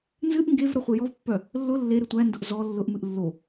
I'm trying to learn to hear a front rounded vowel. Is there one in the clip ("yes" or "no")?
yes